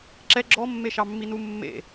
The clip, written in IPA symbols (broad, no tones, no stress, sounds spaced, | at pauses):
ǁ ɛ ɡ͡ǁ ɔ mː e ʃ ɑ mː i n u mː ḛ